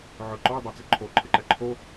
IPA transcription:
ʕʊǃɔ dˤat͡sɪǃʰo ǃʰɪǃɛǃʰo

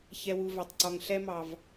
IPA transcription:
çɛ˨wu˨vɑ˨tˤǀɒ˨ŋ ɬɛ˦mɑ˦v

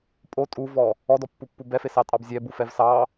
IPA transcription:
pʼo tʼuvɔ | ɔdɔpːupːu bɛfesɑtʼɑb zʲɛbufɛv sɑ

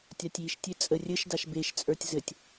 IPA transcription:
tʲatʲiʃtʲe t͡sʼərʲɘʃdaʃ beʃt͡sʼə˞tʲ zɘtʲ

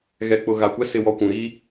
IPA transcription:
ɣɛ˨k͡pʊ˨ɣa˨kʷɛ˦ sɪ˨wɔ˨ kʷũ˨ ɾi˦

